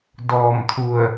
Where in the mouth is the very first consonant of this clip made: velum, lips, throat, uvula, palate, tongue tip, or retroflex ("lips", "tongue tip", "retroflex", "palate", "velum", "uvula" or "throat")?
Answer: tongue tip